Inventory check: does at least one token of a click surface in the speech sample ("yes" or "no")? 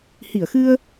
no